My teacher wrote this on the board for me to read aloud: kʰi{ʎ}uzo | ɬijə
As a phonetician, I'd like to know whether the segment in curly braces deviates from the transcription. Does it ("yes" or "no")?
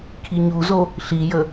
yes